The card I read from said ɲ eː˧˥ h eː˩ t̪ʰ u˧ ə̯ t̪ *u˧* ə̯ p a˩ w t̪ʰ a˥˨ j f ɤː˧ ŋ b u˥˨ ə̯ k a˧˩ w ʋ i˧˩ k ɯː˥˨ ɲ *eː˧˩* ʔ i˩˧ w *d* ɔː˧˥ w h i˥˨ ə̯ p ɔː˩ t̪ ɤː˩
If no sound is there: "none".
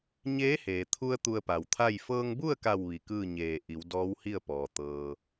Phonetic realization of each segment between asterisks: u˧, eː˧˩, d

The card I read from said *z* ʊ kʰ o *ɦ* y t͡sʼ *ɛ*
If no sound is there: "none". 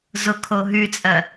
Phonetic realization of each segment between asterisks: z, ɦ, ɜ

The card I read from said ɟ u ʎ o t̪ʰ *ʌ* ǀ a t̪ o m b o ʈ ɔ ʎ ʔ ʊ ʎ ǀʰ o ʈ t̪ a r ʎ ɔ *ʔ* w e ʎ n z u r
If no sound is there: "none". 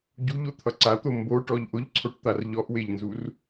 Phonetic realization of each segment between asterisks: ʌ, ʔ

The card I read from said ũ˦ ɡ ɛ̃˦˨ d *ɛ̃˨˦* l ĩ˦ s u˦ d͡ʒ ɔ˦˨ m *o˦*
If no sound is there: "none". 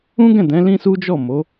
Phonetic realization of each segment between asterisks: ɛ̃˨˦, o˨˦

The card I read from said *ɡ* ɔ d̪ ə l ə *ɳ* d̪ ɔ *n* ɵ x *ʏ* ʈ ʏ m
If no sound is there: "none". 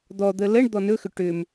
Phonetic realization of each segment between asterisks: d̪, ɳ, n, ʏ

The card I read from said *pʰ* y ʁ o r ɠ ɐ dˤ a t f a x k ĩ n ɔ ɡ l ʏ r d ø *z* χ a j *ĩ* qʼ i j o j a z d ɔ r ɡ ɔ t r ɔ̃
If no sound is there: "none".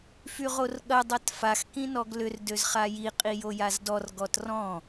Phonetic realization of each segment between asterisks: f, z, i

